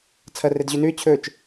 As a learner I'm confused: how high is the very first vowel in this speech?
low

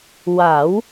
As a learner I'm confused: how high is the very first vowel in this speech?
low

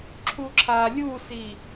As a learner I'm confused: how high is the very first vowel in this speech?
high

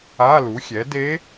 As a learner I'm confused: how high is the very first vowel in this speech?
low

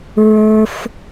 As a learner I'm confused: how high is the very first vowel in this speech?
mid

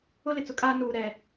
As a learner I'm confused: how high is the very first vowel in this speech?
high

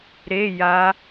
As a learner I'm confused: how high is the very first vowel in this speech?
mid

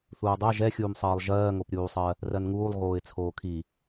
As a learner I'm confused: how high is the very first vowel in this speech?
high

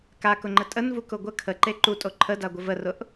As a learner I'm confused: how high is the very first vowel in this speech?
low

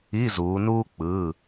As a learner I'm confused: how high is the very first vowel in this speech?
high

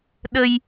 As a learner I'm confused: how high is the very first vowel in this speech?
mid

